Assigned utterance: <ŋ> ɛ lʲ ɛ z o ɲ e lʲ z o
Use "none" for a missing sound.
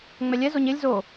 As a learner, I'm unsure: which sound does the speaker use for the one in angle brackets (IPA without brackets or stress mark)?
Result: ŋ͡m